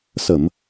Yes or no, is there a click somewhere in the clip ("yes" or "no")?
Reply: no